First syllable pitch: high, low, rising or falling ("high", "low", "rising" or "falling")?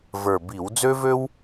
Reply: low